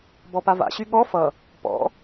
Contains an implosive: yes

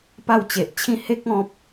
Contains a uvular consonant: no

